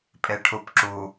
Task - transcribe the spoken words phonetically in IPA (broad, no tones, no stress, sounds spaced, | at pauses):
pʼ e ʈʰ u p ǁ u